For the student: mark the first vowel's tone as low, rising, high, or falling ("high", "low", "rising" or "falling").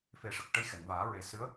low